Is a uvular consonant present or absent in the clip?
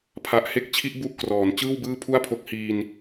absent